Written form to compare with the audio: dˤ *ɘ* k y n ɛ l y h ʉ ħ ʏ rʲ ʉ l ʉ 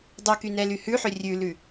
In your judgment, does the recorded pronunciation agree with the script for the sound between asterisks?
no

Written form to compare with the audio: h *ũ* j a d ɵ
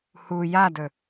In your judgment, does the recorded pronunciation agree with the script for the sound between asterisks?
no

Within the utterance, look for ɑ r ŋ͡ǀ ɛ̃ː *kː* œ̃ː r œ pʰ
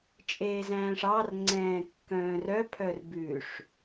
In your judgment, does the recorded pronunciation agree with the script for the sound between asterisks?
yes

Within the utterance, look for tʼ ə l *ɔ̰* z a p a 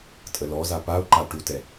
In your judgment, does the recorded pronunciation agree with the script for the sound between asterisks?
no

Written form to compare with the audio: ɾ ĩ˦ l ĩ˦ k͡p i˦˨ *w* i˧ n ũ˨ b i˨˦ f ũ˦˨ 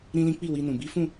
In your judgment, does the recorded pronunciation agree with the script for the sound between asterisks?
yes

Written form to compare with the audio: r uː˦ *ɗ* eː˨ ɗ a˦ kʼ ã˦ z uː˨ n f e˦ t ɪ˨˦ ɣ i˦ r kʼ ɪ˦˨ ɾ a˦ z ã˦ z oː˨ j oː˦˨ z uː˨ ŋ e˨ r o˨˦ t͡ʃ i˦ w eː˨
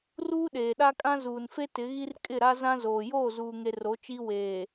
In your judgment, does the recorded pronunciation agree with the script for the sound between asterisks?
yes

